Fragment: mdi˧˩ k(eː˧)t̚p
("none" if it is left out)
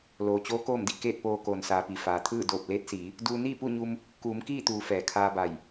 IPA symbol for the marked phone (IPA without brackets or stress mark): eː˥˨